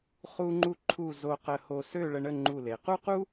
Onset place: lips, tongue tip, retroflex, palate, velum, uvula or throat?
uvula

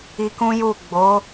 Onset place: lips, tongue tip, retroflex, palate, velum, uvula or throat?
velum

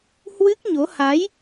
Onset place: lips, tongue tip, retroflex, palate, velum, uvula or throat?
throat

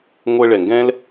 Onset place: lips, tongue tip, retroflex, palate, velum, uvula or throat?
velum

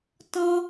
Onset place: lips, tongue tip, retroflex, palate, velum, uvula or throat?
tongue tip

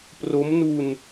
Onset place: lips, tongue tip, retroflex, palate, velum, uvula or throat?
lips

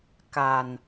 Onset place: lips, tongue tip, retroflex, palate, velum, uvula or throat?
velum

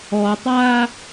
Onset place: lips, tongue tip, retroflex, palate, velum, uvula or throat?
tongue tip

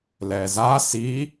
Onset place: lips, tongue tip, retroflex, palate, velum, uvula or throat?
tongue tip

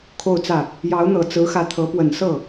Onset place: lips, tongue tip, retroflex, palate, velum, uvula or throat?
velum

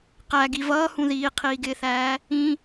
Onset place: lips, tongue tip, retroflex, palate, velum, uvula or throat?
uvula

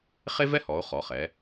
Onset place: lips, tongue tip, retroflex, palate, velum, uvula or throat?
uvula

